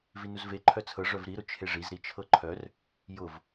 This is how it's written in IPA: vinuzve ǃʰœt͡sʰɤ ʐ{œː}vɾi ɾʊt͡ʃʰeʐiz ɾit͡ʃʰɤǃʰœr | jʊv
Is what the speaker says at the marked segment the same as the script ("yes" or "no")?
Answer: no